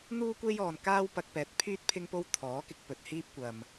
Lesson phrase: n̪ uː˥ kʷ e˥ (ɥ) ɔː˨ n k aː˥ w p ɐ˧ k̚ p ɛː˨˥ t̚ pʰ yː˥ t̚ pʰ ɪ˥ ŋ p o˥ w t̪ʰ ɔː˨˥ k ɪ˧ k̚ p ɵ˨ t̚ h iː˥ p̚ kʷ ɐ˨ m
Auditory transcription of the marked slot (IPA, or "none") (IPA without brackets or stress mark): j